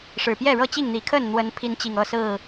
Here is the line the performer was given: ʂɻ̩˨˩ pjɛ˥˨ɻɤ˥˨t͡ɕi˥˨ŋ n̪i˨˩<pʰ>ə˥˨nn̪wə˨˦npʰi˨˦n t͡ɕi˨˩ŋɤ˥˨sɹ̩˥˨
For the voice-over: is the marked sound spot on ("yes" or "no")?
no